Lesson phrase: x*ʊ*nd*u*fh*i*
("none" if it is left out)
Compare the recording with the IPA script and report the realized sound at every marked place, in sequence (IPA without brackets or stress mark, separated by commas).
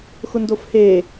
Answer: ʊ, o, e